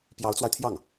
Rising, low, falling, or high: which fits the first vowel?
rising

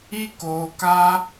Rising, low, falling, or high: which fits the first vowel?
high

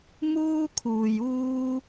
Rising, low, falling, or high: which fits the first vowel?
high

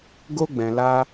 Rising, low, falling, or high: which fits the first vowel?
high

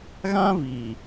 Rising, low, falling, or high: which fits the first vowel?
high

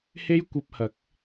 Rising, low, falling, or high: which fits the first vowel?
high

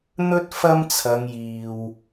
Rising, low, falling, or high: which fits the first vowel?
high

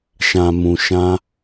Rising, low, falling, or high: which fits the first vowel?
low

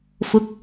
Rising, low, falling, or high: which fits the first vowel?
rising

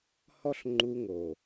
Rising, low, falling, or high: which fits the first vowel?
high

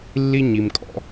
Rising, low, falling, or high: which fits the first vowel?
high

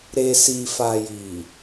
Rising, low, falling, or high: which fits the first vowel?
low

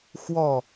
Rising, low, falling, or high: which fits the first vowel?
falling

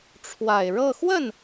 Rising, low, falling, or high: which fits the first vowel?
low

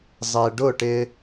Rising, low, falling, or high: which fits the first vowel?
low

